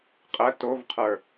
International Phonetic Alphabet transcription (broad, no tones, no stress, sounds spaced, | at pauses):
qʼ ɜ t o v qʰ ə˞